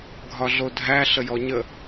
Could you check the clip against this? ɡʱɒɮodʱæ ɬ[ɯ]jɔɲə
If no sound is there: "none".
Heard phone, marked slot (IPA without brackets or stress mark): ə